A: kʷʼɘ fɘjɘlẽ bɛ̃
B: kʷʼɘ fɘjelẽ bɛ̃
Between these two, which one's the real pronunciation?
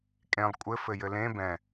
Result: A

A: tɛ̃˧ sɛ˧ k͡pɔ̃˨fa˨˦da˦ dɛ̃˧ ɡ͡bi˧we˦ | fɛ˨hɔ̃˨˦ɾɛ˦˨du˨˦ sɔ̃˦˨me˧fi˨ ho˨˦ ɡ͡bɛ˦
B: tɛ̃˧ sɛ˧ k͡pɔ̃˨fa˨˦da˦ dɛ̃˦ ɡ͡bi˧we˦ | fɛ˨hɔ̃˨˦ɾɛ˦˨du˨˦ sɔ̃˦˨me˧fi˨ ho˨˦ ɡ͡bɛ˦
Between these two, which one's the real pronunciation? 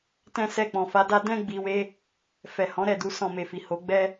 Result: B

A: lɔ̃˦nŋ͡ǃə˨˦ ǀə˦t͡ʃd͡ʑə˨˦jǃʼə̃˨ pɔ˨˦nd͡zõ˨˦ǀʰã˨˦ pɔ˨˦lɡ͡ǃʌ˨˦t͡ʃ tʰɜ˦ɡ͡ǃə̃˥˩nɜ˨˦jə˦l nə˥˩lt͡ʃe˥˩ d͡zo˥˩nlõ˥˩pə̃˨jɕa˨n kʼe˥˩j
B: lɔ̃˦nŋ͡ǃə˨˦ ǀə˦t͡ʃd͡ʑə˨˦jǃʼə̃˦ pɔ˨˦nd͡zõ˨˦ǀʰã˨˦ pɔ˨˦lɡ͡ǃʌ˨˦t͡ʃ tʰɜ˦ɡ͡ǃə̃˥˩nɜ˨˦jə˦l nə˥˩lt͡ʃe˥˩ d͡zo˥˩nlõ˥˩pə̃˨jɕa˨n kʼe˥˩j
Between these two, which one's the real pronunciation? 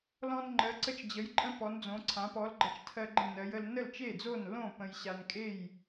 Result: B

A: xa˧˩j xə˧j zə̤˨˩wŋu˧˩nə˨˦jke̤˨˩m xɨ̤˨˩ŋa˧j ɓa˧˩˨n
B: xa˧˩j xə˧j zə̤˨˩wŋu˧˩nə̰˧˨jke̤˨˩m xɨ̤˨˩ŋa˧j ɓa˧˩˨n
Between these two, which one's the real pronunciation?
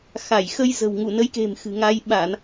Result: A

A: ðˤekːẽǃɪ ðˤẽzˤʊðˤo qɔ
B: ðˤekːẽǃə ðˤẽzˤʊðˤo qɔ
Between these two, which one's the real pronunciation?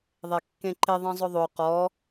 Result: A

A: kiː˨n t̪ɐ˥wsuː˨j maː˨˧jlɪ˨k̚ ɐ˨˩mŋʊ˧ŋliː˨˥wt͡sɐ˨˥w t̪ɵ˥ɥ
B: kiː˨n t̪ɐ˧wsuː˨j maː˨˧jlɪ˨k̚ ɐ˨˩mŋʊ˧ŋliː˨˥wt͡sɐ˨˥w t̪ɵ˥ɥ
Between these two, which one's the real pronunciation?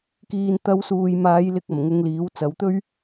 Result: B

